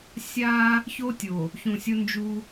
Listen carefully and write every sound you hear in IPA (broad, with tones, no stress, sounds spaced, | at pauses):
sʲ a˦ | ç o˦ tʲ o˨ | ç ũ˨ sʲ o˦ n d͡ʒ u˦